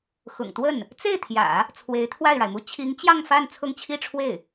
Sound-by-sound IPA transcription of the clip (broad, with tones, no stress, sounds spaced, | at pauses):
x ʊ̰˨˩ ŋ t̪ w ə˥˩ n | t͡s e˥˩ ɪ̯ t̪ʰ j ä̰˨˩˦ | t͡sʰ w e˧˥ ɪ̯ t̪ʰ w a˥˩ ɪ̯ ɻ a˩ ɪ̯ m u˥˩ t͡ɕʰ i˧˥ ŋ t͡ɕ j ɑ˥˧ ŋ f a˥˧ n t͡sʰ ʊ˥˧ ŋ t͡ɕʰ i˥˧ ʈ͡ʂʰ w e˥˩ ɪ̯